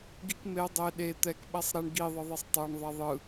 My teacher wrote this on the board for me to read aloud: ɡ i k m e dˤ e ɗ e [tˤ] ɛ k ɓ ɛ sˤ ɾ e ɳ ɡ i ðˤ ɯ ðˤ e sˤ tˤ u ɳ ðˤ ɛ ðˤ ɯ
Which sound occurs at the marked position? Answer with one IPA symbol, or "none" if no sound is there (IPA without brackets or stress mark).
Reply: t̪